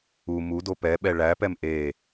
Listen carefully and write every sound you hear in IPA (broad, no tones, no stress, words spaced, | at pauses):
u mudo pɛɓɛ ɭæpɛm ʔe